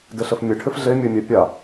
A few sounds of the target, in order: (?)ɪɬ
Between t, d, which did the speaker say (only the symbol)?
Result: d